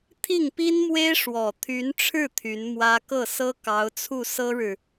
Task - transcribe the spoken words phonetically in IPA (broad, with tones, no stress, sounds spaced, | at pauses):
t̪ʰ i˥˩ ŋ p i˥ n m w e˥ ɪ̯ ʂ w ɔ˨˩ t̪ʰ y˧˥ n ʈ͡ʂʰ ɻ̩˥˩ t̪ʰ y˧˥ n m w ä˥ k ɤ˥˩ s ɤ˥ k ɑ˧˥ ʊ̯ t͡sʰ u˥˩ s ɤ˥ ɻ ɻ̩˨